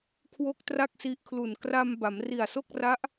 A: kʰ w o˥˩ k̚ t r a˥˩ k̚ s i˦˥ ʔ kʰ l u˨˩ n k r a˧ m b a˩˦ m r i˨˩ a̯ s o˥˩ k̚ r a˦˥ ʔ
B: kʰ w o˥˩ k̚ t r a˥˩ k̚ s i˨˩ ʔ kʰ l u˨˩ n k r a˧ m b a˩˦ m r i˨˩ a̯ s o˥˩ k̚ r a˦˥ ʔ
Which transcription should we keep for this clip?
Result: A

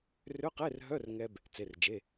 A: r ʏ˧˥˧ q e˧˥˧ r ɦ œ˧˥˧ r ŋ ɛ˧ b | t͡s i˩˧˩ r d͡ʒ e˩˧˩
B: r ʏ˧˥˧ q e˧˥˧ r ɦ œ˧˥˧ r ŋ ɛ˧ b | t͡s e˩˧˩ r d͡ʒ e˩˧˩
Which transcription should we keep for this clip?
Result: B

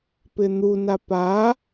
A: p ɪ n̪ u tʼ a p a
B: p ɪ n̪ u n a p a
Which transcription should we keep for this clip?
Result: B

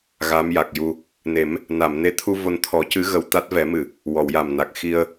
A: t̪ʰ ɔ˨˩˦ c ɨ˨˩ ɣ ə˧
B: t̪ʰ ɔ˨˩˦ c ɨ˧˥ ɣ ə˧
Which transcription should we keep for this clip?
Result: B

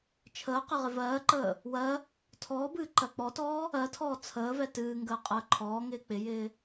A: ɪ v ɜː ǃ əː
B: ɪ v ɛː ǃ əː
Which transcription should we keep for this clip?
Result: A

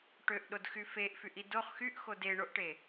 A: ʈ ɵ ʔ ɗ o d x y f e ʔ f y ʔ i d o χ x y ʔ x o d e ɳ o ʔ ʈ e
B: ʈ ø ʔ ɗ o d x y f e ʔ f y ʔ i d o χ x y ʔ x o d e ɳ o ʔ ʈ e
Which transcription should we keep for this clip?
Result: B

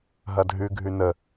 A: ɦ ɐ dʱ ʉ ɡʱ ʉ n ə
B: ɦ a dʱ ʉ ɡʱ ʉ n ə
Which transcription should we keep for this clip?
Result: A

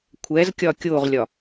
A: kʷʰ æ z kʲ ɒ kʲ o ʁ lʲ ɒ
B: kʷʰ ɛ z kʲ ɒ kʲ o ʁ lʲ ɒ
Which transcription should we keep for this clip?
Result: B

